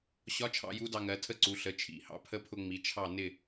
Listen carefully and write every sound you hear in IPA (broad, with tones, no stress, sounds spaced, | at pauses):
ɕ ɒ˧˥ t͡ʃʰ ɑ̰˧ j u˧˥ d ɑ˧ ŋ ɜ˩˧ tʰ ə˧ ǀ u˩˧ ɬ ə˩˧ t͡ʃʰ ḭ˩˧ h ɑ̰˧ pʰ ə˧˥ pʰ ʊ˧ ŋ͡m i˩˧ t͡ʃʰ ɑ˧˩ n ɪ˧˩